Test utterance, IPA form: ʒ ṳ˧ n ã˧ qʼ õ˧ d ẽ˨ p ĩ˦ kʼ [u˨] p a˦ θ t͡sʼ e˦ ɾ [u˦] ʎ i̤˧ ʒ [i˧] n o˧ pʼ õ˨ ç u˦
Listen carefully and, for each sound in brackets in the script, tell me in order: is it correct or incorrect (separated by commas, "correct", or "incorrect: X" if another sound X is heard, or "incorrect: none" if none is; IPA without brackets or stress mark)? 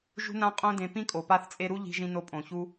incorrect: o˨, correct, incorrect: ĩ˧